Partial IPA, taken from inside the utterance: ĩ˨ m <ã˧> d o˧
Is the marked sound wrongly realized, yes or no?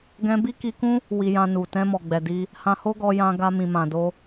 yes